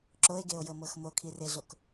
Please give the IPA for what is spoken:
ǁ o e̯ ɡ e o̯ j ɤ m ɤ x m o kʰ i r e ɮ o k

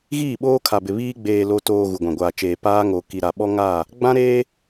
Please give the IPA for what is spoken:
ɣ iː˦˨ ɓ oː˦ kʰ a˨ b ɪ˨ β iː˦ ɡ͡b eː˨ l o˨ t oː˨ ɣ u˨ ɡʷ ã˨ ɡʷ aː˨ t͡ʃ eː˨ p aː˦ ŋ o˨ k i˨ ɾ a˨ ɓ ɔ˦ ŋ a˦˨ | ɡ͡b ã˦ ɾ eː˦

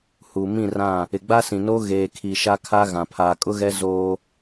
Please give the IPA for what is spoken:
h u˨ m ĩ˦˨ r ã˦˨ | ɪ˨ ɡ͡b a˦ s ĩ˨ n oː˦ ɣ eː˨ kʰ i˨ ʃ a˦ kʰ a˦ ɣ ã˨ pʰ aː˨ kʼ ʊ˦ ɣ ɛ˦ z oː˦

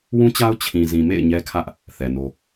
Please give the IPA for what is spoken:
w ũ˦ t͡ɕ a˦ ʊ̯ t͡ɕʰ ĩ˨ z ĩ˨ m ḛ˦˨ ɪ̯ ɲ ɛ˦ kʰ ä˦ ʔ | θ ɛ˨ n o˦

